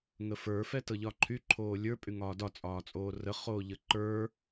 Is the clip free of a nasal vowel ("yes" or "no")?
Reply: yes